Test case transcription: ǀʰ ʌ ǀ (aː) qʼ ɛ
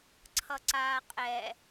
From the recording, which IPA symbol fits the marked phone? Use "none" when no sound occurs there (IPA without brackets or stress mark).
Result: aː